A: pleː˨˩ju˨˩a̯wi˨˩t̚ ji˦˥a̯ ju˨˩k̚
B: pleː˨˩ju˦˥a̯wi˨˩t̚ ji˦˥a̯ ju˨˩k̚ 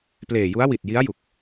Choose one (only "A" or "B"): B